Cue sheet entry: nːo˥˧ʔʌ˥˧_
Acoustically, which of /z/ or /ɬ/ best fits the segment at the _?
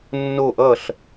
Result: ɬ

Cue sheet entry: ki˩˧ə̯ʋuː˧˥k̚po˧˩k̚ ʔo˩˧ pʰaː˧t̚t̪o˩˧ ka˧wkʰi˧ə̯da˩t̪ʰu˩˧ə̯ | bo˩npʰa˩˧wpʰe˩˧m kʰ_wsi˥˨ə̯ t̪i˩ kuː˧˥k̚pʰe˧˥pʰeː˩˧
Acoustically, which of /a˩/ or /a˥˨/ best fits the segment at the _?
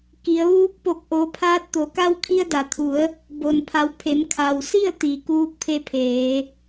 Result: a˩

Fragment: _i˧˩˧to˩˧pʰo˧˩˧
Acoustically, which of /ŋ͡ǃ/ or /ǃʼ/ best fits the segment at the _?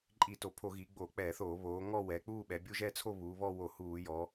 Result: ǃʼ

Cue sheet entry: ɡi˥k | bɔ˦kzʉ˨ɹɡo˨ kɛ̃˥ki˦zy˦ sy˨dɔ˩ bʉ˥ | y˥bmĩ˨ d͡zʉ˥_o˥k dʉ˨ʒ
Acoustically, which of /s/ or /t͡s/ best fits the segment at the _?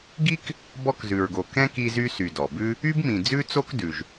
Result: t͡s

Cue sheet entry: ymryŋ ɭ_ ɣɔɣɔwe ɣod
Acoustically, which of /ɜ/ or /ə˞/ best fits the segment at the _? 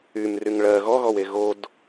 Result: ɜ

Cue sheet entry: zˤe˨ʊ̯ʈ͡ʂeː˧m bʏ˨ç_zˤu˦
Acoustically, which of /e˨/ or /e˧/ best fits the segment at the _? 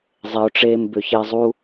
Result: e˧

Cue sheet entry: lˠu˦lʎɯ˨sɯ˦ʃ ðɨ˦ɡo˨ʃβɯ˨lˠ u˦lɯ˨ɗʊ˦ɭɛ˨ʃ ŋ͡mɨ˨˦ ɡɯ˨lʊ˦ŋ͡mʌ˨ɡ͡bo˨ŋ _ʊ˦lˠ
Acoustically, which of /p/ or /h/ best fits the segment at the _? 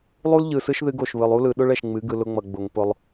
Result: p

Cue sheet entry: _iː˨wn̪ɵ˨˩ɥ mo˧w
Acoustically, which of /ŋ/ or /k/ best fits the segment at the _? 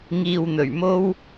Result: ŋ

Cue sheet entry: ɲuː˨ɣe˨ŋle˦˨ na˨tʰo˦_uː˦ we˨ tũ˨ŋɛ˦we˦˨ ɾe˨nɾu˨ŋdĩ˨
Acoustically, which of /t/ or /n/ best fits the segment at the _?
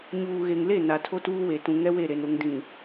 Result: t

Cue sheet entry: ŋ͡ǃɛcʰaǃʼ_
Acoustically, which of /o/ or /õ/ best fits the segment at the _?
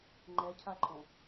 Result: õ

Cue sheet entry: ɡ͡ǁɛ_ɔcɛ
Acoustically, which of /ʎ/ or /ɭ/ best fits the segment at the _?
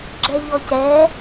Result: ʎ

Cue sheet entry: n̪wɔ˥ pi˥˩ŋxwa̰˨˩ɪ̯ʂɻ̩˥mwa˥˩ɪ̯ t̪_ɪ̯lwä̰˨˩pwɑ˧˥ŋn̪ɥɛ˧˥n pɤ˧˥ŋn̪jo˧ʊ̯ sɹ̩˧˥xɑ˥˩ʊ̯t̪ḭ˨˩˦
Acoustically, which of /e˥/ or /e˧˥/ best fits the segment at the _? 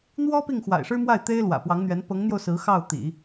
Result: e˥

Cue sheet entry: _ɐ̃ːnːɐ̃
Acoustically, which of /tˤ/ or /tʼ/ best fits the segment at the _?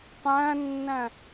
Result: tˤ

